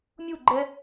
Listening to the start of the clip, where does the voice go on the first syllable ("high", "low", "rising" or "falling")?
falling